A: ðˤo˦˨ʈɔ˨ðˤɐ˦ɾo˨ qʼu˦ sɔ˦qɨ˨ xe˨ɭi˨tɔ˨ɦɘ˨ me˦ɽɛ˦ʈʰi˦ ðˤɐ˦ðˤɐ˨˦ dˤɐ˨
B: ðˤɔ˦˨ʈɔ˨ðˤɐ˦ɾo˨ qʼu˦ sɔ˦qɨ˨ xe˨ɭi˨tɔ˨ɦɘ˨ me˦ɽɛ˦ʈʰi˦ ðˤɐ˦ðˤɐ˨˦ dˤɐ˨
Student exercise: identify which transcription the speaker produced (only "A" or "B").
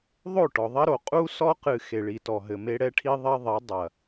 A